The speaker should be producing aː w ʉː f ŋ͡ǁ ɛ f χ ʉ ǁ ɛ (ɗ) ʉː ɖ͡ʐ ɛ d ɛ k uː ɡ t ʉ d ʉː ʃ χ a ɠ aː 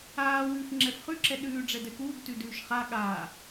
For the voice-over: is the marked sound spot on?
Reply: yes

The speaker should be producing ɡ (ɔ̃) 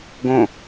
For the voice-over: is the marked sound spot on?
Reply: no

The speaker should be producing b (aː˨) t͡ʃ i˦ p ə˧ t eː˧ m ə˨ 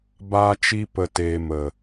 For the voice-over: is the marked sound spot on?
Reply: no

